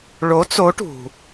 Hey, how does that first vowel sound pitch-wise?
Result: rising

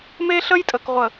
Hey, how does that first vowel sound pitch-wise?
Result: high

